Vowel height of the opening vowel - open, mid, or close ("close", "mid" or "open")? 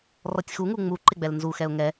mid